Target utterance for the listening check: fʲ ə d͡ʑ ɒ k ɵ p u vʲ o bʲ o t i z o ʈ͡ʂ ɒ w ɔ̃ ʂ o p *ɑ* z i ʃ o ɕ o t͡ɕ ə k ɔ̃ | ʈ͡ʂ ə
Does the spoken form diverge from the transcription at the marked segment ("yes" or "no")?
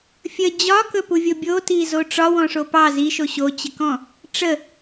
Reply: no